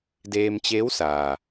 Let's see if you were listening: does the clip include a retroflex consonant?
no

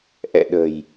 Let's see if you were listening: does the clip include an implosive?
yes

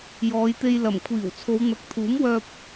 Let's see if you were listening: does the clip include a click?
no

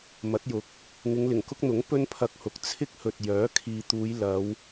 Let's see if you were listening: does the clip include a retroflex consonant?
no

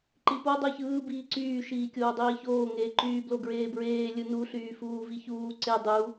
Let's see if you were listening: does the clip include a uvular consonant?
no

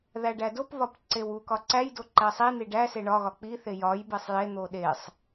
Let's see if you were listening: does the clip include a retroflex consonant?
yes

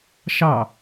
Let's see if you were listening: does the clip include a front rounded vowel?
no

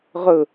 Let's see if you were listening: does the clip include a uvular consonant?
yes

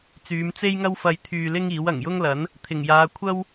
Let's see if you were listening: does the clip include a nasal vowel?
no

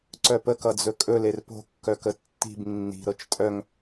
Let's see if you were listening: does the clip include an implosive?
no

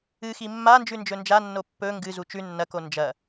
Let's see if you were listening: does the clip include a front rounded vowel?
no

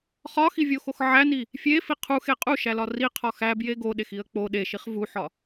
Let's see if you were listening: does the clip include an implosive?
yes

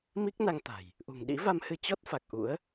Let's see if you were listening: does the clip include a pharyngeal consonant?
no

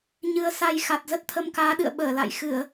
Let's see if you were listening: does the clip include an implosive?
yes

